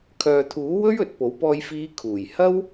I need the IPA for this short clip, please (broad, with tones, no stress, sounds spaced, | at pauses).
kʰ œː˨ t̪ʰ uː˨˥ w ɵ˥ ɥ ɵ˨ t̚ p o˨˥ w p ɔː˧ j f iː˨˧ kʰ uː˨˩ j h ɐ˥ w